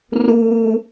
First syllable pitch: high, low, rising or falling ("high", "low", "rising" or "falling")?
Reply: high